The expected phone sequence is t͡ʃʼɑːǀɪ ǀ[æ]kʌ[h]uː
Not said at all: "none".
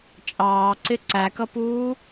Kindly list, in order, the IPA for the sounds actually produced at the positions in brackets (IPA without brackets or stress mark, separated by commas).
æ, p